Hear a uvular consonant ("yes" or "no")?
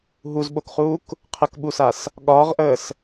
yes